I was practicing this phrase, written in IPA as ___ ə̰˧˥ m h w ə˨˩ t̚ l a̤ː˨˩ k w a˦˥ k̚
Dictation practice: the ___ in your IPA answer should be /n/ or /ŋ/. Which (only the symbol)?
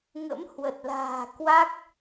ŋ